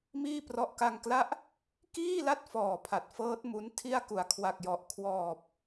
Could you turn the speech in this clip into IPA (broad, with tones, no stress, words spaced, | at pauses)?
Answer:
miː˥˩ prɔ˦˥ʔka˧ŋkla˥˩ʔ | kiː˥˩la˥˩t̚ fɔː˨˩pʰa˨˩t̚ fɤː˦˥t̚ mu˦˥n tʰi˥˩a̯ ku˩˦a̯ kʰwa˨˩k̚jɔ˨˩ʔ kʰwɔː˨˩p̚